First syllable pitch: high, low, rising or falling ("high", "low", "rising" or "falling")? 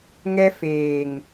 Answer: high